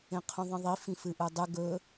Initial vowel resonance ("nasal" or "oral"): nasal